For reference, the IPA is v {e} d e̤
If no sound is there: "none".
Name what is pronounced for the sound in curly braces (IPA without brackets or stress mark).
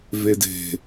e